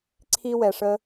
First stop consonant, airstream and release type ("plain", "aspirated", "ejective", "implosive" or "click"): click